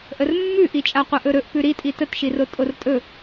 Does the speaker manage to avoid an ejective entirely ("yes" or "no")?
no